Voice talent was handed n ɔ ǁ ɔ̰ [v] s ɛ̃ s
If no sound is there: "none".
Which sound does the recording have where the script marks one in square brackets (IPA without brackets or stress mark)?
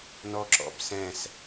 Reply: b